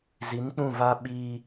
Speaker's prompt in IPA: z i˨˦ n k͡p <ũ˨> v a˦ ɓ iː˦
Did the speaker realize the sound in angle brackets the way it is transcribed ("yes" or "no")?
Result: no